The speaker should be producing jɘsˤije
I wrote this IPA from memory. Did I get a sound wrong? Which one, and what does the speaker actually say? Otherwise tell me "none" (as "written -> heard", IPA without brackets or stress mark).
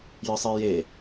none